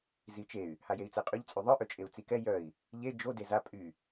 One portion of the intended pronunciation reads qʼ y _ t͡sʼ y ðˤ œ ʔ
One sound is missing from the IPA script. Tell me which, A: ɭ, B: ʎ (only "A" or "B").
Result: B